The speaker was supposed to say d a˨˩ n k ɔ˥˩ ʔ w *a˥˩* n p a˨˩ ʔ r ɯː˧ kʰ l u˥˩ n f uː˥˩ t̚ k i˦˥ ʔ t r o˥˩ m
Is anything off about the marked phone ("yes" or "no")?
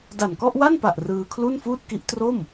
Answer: no